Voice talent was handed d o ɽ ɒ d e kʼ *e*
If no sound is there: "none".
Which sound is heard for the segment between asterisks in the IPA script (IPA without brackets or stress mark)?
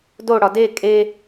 e